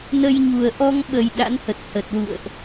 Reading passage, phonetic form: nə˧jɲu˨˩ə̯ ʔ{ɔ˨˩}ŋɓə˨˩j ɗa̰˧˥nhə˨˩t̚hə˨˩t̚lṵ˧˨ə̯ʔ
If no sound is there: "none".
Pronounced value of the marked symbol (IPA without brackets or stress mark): ɔ˧